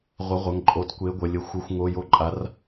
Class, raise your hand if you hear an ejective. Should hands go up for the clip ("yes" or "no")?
yes